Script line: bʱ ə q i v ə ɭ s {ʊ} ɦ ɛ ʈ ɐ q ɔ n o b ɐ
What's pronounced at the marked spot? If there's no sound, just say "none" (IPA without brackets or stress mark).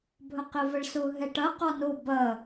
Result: ʊ